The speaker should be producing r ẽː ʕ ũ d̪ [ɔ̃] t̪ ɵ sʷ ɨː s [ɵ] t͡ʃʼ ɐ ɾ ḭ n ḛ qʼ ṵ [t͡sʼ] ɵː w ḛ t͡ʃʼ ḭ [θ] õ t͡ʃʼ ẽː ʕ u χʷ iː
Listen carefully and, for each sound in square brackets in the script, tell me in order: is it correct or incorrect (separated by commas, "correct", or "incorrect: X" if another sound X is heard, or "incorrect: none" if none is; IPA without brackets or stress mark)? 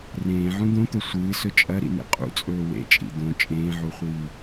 incorrect: õ, correct, correct, incorrect: d̪